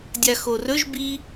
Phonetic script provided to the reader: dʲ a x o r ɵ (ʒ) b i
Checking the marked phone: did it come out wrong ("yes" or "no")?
no